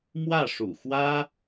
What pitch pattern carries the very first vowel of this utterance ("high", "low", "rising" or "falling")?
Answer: falling